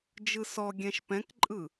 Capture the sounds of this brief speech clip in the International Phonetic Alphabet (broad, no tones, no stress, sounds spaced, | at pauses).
d͡ʒ ɯ s ɔ ɡʲ ɛ̃ ʃ p ɛ̃ k ǃʼ ɯ